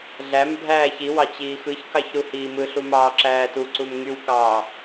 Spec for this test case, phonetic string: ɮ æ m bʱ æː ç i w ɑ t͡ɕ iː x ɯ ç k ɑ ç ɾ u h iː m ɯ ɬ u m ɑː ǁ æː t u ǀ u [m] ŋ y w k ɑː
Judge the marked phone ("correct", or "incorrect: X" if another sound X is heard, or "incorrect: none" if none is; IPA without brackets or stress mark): correct